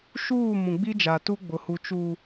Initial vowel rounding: rounded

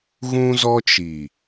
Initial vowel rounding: rounded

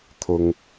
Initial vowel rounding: rounded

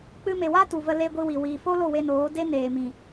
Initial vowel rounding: unrounded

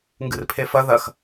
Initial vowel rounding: unrounded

